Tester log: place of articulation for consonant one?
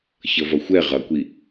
palatal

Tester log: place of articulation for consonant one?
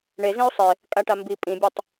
retroflex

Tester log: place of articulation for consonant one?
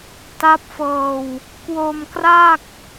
alveolar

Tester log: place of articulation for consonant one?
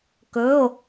velar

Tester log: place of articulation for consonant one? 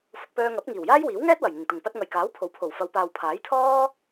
labial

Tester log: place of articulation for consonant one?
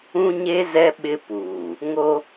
palatal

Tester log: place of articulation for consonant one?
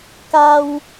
velar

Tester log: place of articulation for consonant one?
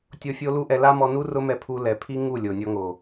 alveolar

